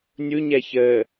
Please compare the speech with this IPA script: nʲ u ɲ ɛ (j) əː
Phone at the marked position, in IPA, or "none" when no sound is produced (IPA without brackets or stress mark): ç